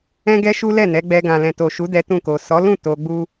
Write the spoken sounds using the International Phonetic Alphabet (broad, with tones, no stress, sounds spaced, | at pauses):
ɛ̃˦ ɡ ɛ˦ ʃ u˦ l ɛ˦˨ n ɛ˨˦ ɡ͡b ɛ˧ ɡ ã˨ l ɛ̃˨ t o˨ ʃ u˨˦ d ɛ˦ t ũ˦˨ k o˨ s ɔ˨˦ l ũ˦˨ t o˧ ɡ͡b u˦